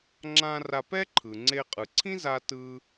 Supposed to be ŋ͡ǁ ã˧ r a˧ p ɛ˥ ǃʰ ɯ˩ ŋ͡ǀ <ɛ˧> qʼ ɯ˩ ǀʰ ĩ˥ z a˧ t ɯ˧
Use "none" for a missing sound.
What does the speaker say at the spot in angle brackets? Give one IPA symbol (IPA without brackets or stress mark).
e˧